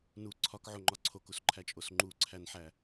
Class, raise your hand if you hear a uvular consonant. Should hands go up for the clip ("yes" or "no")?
no